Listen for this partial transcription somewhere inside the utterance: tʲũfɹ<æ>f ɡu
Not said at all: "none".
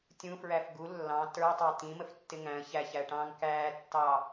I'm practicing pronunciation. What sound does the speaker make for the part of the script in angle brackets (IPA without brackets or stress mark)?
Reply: æ